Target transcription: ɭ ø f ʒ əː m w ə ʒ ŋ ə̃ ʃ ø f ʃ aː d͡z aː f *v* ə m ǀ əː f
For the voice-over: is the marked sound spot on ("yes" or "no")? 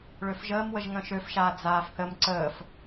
no